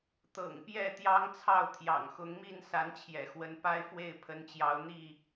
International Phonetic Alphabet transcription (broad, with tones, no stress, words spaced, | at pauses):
t̪ɤ̰˨˩ŋpjɛ˥˨ t̪jɑ˦ŋt͡sʰɑ˥˨ʊ̯t̪ʰjɑ̰˨˩ŋ xʊ˨˦ŋmi˥˨n sa˨˦nt͡ɕʰjɛ̰˨˩xwə˨˦n pa˦ɪ̯fwe˥˨ɪ̯ pʰə˨˦nt͡ɕjɑ˨˦ʊ̯n̪i˥˨